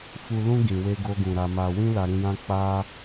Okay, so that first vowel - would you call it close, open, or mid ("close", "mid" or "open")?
close